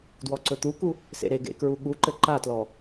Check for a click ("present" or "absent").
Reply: present